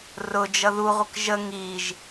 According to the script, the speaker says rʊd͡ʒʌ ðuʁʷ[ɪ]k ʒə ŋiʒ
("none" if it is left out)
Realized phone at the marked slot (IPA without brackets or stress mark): ɪ